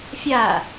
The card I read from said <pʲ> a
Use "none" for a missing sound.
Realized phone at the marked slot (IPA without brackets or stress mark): fʲ